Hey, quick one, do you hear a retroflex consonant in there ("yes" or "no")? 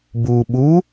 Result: no